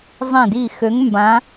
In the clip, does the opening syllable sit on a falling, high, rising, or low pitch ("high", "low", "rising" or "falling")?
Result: low